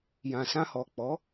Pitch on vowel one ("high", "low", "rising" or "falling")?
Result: low